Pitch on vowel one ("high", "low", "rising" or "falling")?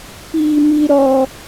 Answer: low